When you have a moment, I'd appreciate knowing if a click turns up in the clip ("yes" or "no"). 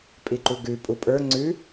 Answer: yes